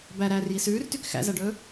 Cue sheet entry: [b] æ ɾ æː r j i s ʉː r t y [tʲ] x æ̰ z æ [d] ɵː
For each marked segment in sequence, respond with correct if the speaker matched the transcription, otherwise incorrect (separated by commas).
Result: correct, incorrect, incorrect